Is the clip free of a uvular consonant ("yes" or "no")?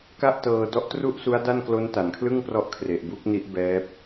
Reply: yes